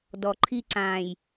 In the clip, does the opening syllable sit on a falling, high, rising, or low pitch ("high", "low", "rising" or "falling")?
low